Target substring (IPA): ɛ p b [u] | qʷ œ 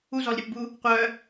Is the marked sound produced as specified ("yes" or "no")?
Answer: yes